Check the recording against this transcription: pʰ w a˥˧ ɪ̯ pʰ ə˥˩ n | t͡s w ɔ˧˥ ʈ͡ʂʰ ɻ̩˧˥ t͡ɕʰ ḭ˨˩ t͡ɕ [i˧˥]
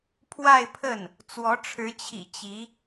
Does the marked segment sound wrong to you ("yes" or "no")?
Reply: no